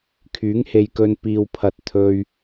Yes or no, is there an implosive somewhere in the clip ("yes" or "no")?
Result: no